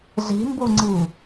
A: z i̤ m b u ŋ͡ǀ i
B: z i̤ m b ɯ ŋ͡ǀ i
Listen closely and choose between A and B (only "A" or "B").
A